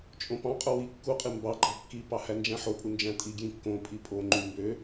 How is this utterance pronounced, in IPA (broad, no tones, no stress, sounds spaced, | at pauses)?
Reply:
t͡ʃʼ õ p ɑ̃ qʼ o w i kː u qʼ i m b ɑ ɡ͡ǃ ɑ kː i p ɑ h æ n d͡ʒ æ̃ ħ o pʼ u n d͡ʒ æ̃ tʼ i ɡ j ĩ kː õ pʼ i pʼ o ŋ͡ǃ y m b ø